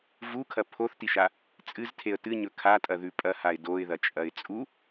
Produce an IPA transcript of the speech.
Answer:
vukʰɐ pʰoθtiʃa | t͡sʼɨztʰeə̯ tɨɲɵ kʰatʼɐðʉ pʼɐhaɪ̯ doɪ̯ðɐt͡ʃʼɐɪ̯ t͡sʼu

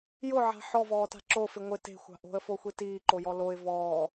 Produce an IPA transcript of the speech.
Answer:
jʊʕa̤ ħɔvɔːta̤ ǁofɪ ŋʷɪ te̤xʷa̤ ʔo̤ə̯foxʷi tiːǃojɔ loɪ̯ vɔː

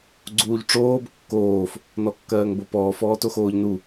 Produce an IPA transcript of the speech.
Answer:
ɡ͡ǀuːʎʈ͡ʂoːb kːoːf | nɔkːɜːŋbopɔːf ɔːtoxoːʎnu

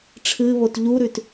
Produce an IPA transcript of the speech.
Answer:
ʈ͡ʂʰɨβot ʎuɾʉt

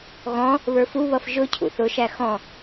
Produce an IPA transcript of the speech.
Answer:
ɣɔ̃ | βə˞fuβʌf ʒʊ cʰṵθʊʃæ xɔ̃

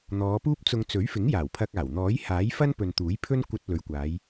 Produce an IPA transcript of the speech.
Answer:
n̪ɔː˨˧puː˥p̚t͡sʊ˧ŋ t͡sɵ˨˥ɥfɪ˨˥ŋ jaː˨˩wpʰɐ˧k̚aː˨˩w n̪ɔː˨˥jhaː˨˥jfɐ˥n pɵ˨nt̪uː˨˥jpʰɵ˥n kʷɐ˧t̚ lɵ˨˧ɥkʷaː˨˧j

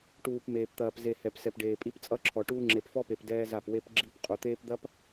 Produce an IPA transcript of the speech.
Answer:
ʈuː˨p meː˨pt̪ɐː˨pze˨ hɛ˨psɛ˨pɖeː˨ pʼi˦pt͡sʼʌ˦ǁʰɔ˨ʈuː˦ ŋ͡ǁe˨pfɔ˦pe˨p dɛː˦za˦˨p we˦p ɡ͡ǁi˦p qʼu˨t̪eː˦pd̪ɐ˦p

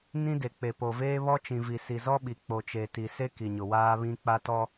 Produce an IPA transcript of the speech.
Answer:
nĩ˦de˨ k͡pe˨po˨veː˦ βɔ˦t͡ʃĩ˨vi˨ si˨zɔ˦ɓi˨ k͡po˨t͡ʃe˨ti˨se˦ ki˨ɲʊ˨waː˦βĩ˦ k͡pa˦tɔ˦

